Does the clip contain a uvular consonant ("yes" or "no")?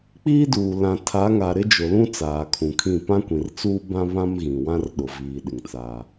no